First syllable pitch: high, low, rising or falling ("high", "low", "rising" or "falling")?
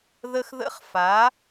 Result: high